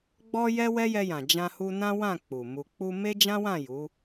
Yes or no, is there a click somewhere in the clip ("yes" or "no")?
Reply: no